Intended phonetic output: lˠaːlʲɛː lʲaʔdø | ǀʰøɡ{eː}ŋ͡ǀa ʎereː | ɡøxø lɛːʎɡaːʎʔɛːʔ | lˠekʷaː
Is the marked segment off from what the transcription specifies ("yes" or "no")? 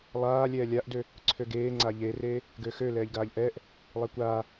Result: no